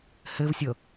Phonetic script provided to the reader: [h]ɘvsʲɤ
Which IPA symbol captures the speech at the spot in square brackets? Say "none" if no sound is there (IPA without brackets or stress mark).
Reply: h